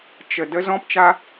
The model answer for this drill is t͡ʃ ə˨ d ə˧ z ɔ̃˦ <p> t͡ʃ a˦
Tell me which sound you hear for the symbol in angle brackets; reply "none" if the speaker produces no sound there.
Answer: p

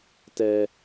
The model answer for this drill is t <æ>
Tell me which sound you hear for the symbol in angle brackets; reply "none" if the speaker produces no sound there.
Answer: ɛ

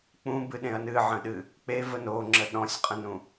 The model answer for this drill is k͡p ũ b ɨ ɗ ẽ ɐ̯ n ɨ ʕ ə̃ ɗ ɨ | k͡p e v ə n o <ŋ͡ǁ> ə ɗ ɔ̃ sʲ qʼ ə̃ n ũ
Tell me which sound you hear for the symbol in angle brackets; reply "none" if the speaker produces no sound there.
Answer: ŋ͡ǁ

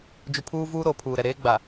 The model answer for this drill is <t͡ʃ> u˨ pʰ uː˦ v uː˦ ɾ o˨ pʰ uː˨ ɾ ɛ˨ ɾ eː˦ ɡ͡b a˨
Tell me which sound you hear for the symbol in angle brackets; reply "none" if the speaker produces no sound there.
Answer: d͡ʒ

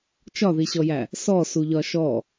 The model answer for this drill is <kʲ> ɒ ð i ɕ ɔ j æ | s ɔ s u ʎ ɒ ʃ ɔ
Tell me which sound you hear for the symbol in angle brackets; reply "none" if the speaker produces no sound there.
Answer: t͡ʃ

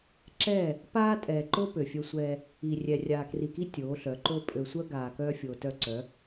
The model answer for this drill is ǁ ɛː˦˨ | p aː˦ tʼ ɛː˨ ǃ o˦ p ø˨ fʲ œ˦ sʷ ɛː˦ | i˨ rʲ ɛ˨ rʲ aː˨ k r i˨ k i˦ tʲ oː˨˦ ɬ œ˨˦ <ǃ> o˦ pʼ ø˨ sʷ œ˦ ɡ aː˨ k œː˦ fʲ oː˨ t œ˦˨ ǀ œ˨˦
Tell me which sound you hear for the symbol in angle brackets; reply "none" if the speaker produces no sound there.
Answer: ǃ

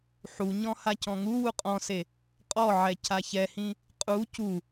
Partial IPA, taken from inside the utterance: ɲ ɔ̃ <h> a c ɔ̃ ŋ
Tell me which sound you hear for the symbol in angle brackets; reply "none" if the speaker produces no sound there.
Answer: h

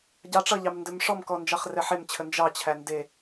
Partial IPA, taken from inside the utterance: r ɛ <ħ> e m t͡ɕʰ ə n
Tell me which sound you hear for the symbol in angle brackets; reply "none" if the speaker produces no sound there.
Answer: ħ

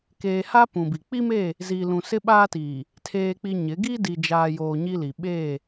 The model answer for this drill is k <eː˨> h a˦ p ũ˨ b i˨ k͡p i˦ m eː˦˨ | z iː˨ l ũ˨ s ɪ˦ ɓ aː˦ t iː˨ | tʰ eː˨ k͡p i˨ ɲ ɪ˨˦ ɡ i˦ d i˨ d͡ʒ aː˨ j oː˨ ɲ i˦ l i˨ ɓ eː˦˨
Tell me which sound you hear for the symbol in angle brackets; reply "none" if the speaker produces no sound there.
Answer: eː˨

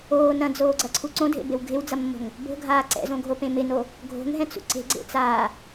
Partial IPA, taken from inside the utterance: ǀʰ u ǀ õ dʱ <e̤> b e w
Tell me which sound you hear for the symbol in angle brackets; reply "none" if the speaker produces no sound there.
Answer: ḛ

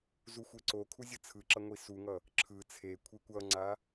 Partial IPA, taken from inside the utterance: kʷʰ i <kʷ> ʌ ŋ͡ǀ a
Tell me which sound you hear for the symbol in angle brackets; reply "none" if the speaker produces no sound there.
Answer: kʷ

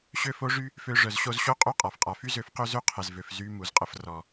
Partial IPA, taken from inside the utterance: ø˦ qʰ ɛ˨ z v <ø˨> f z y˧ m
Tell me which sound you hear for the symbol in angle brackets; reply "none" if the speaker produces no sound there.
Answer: ø˨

